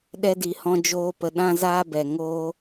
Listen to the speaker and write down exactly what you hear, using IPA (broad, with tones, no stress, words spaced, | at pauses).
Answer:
ɗɛ˧di˨hɔ̃˧ d͡ʒoː˧pə˨ ɗã˦zaː˦bɛ˨ ŋoː˦